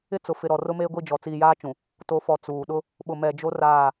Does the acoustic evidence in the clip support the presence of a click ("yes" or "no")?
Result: no